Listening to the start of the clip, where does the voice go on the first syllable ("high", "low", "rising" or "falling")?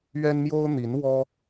high